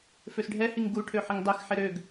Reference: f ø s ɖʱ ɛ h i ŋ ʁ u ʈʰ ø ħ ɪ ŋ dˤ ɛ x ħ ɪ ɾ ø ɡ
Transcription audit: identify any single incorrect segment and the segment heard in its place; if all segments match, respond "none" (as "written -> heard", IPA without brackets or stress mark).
ʁ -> ɡ